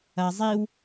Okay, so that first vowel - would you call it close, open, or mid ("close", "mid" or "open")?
open